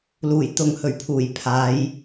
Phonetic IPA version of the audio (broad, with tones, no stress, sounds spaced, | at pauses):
l uː˨˩ j t̪ ʊ˨ ŋ h ɵ˨˩ ɥ pʰ uː˨˩ j pʰ aː˨˧ j